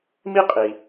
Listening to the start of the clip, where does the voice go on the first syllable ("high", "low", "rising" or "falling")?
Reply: high